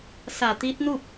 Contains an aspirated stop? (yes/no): no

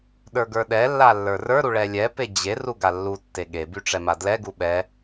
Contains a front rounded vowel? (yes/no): yes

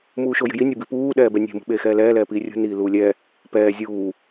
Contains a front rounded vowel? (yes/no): no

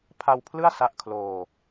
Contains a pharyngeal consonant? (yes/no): no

